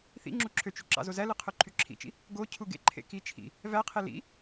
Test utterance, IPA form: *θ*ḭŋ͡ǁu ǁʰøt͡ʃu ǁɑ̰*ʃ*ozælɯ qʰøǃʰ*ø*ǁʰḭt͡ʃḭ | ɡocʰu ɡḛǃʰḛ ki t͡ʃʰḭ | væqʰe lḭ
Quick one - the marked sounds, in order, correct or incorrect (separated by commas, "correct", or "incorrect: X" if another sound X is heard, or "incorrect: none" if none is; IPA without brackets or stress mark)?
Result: correct, incorrect: z, incorrect: y